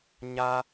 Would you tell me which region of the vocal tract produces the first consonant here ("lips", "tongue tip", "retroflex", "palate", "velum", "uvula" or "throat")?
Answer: palate